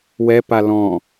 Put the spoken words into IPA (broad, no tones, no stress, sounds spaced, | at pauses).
w ɛ p a l ɔ̃